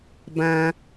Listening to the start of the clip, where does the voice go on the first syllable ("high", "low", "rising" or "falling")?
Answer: high